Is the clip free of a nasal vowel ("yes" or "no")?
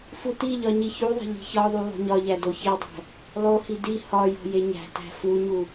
yes